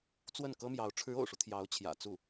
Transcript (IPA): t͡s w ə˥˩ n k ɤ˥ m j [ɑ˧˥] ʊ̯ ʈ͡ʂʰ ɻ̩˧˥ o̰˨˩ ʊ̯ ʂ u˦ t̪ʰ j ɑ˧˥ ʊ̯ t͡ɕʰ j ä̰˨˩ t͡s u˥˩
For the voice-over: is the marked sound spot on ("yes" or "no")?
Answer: yes